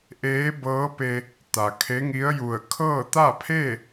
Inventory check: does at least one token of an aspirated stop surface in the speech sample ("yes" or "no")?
yes